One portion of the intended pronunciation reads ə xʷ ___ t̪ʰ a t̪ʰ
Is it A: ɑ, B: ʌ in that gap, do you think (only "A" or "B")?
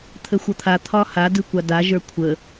B